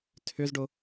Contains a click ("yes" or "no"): no